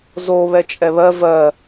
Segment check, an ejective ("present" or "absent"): present